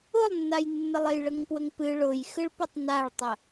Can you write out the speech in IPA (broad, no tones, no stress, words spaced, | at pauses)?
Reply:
ʊlˠnːajnːəlˠej ɭəŋpwəŋpɨ ɭʊjxɨɭpʊtˤ naɭtˤə